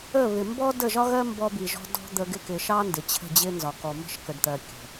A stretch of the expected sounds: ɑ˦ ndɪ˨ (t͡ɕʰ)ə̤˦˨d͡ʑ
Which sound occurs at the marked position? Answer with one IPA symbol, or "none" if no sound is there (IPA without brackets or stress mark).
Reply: t͡ɕʰ